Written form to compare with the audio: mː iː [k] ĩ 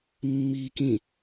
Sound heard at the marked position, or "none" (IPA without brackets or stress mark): k